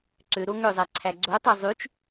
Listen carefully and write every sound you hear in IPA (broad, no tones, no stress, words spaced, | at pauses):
ǀøɾo ŋøzˤæǀʰæ ɡ͡ǀotˤɑ zˤyt͡ʃ